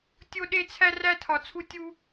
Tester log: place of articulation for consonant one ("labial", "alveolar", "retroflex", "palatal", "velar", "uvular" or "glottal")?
alveolar